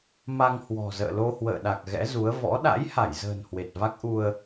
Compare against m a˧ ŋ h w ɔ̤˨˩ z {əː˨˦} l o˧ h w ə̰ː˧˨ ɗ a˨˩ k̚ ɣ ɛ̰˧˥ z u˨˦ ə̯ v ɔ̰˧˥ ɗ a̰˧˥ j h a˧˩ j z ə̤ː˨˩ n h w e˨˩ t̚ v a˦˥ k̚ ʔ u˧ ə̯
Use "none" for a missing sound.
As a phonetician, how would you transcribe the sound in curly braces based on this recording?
ə̰ː˧˨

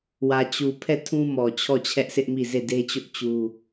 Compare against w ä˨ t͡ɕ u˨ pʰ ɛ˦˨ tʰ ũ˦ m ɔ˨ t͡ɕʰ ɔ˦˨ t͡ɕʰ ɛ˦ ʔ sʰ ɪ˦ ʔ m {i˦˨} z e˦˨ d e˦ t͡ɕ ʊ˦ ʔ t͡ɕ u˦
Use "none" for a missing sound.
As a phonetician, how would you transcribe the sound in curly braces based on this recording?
i˦˨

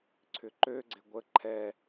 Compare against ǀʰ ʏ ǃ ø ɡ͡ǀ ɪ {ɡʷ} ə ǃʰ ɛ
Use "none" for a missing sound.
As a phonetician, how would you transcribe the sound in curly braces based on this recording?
ɡʷ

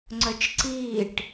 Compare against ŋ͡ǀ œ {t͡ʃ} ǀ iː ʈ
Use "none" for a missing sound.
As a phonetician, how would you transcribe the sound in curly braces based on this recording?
t͡ʃ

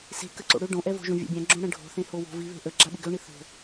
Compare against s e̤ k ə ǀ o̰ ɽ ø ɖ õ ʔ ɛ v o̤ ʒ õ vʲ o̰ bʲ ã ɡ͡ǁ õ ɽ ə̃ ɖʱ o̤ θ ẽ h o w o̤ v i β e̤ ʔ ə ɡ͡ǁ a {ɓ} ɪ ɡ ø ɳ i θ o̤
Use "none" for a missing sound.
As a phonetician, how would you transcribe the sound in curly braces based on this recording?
ɓ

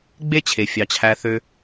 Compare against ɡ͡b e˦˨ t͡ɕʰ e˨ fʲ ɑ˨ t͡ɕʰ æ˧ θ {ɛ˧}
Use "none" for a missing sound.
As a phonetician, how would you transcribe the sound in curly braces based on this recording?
ø˧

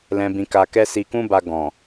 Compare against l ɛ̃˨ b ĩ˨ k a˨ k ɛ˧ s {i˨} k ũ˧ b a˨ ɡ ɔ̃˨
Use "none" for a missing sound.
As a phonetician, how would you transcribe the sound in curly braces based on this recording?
i˨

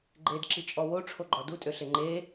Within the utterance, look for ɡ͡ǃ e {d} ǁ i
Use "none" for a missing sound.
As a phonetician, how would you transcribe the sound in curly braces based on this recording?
d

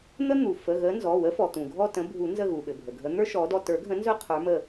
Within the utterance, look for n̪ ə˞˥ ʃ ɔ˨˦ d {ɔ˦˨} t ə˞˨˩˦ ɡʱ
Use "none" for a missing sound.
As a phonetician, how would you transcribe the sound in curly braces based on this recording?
ɔ˦˨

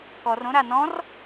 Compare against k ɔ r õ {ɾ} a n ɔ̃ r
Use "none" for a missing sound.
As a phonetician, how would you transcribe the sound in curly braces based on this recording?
ɾ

